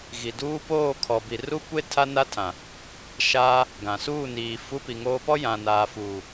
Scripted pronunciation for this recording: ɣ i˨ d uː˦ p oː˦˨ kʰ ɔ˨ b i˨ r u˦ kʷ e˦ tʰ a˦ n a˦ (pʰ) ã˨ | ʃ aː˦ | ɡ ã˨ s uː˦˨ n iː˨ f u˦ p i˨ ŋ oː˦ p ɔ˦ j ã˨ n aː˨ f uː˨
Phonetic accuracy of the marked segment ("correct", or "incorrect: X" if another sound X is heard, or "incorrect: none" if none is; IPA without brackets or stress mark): incorrect: tʰ